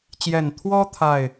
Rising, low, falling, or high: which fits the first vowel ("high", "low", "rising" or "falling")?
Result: low